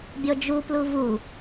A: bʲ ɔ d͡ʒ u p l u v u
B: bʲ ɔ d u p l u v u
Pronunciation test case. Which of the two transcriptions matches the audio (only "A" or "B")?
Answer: A